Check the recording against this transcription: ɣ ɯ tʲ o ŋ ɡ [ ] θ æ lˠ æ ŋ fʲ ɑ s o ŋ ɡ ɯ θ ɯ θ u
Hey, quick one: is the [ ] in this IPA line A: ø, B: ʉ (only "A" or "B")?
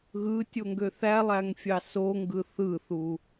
A